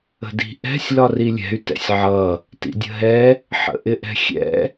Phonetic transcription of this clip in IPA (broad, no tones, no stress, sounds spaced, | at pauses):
ə̤ d i̤ ʔ ɛ̤ sʲ l ɒ r i lʲ ɛ̤ y̯ t ɛ̰ sʲ ʕ ʌ | t ḭ dʲ ə̤ ɦ ɛ | ħ ə̰ ʔ ɪ ʔ ɛ̤ xʲ ɛ̰